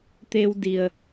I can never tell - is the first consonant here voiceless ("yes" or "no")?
yes